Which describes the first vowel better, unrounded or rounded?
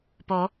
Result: rounded